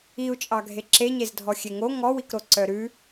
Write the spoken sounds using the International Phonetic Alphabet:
i u̯ t͡ʃʼ ɑ ɡʱ e ǁ e ɲ e z dʱ ɔ xʲ e ŋ o ŋ ɔ w i k ɾ o ǀ œ ɾ ʉ

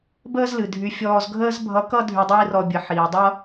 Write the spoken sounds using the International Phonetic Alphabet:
b əː˥ z l ɨ˩ dʱ y˧ fʲ ɔː˧ z ɡʱ əː˥ z bʱ ʌ˧˥ k ʌ˥ dʱ y˧ dˤ iː˥ r ɔ˧ bʲ ə˩˧ ħ iː˩ dˤ ʌ˥

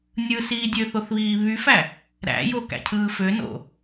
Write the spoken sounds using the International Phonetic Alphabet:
nʲ ɯ s iː dʲ ø θ o θ β iː β y f æ | ɾ æ̰ j o k æ̰ cʰ ɯː f ø n o̰

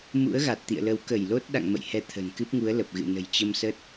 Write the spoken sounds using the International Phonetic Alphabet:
m ṵ˧˥ ə̯ ɣ a˨˩ t̚ t̪ ḭ˧˨ ə̯ l ə˨˦ w k ə˧˩ j l o˦˥ t̚ ɗ a̰˧˨ ŋ m ə̰˧˨ j h ɛ˨˦ t̪ʰ ə̤˨˩ n k ɨ˦˥ p̚ ŋ u˨˦ ə̯ l ə˨˩ p̚ ɣ ɨ̰˧˨ n ə̤˨˩ j t͡ɕ ə˧ m s ə˦˥ t̚

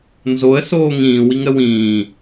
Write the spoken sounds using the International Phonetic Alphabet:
n z o ə̯ s oː ŋ ĩː w i ŋ ɾ ə w ĩː

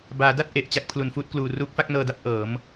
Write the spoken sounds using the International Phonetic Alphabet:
b aː˩˦ d a˥˩ t̚ ʔ e˨˩ ʔ t͡ɕ a˥˩ k̚ pʰ l u˨˩ n f uː˥˩ t̚ k l uː˨˩ r uː˦˥ k̚ f a˥˩ k̚ n ɤː˧ d a˥˩ p̚ ʔ ɤː˩˦ m

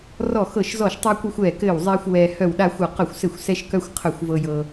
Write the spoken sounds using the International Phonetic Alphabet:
r ɔ˦˨ x ɤ˦˨ ʃ z ɔ˦˨ ʃ tˤ a˦ kʷ œ˦ xʷ ɛː˦˨ k ɘː˦˨ w zˤ ɛː˦ xʷ w ɛː˦ h œ˦˨ w ɗ a˦ xʷ ɤ˦˨ q œ˦˨ xʷ s ɘ˦˨ xʷ s ɛ˦ ʃ k œ˦ xʷ qʰ œ˦˨ xʷ v ɤ˦ j ɤ˦

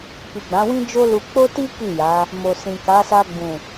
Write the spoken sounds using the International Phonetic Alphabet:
k i˨ ɡ͡b ã˨˦ w ĩ˦ d͡ʒ o˦ l u˧ k͡p o˦ t i˦ k i˦˨ j a˨˦ | m o˨ s ĩ˨ k a˨˦ s a˧ ɡ͡b ũ˨

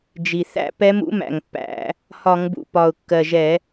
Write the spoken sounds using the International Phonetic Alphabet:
d͡ʒ i˨˩ θ æ̰˧˥ p ɛ˧˥ m ṵ˧˥ m æ̰˨˩ ŋ pː æ̰˧˩˧ | h ɒ˧˩˧ ŋ b ṵ˨˩ p ɒ˨˩ ʊ̯ kː ɜ˨˩ ʒ ɛ˧˩˧

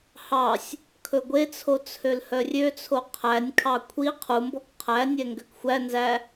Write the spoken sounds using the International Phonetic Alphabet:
h ɑ sʲ | kʰ ɵ ɡʷ e t͡sʰ o t͡sʰ ø l h œ rʲ ø t͡sʰ o qʰ æ nʲ kʰ ɑ kʷʰ i qʰ u m b ɔ k qʰ æ nʲ ɛ ŋ ɡ ø k xʷ æ n z æ

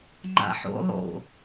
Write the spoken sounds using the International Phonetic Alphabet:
ŋ͡ǃ a̰ ħ o̰ lˠ o̰

